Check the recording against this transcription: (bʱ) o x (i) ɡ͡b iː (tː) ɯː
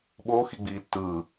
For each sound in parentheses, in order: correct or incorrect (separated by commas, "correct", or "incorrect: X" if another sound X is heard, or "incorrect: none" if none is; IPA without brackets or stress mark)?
incorrect: ɓ, correct, correct